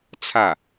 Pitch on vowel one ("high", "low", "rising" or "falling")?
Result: falling